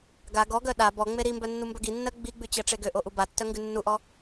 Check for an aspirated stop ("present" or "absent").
absent